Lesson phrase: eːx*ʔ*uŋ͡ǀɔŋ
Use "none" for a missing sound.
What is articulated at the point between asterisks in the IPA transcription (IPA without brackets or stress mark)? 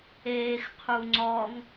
qʰ